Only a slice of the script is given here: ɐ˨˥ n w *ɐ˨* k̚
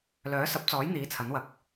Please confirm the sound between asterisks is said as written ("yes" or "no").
yes